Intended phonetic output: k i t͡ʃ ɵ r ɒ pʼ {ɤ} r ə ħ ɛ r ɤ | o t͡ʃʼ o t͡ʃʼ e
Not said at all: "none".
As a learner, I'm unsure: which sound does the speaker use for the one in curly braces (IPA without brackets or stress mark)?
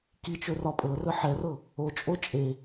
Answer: ɤ